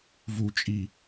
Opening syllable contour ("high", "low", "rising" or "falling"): low